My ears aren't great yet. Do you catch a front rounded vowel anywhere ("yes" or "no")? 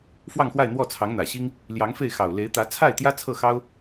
no